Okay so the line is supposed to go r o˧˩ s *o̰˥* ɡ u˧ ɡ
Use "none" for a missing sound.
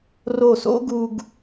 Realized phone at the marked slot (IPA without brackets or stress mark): o̰˥